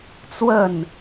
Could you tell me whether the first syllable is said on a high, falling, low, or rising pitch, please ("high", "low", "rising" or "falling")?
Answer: falling